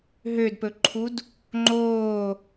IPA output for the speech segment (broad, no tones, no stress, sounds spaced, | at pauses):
ɦ ø d p ɵ ǃʰ u d | ŋ͡ǃ oː